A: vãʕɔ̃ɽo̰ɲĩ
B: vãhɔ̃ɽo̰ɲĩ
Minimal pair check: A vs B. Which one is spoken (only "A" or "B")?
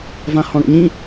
B